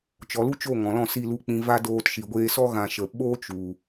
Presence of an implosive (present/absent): present